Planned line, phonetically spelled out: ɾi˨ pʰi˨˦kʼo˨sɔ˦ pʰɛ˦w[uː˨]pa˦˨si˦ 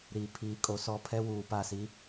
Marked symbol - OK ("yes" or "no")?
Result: yes